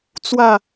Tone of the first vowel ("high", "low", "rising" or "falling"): falling